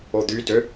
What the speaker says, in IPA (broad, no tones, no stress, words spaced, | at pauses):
od̪y dø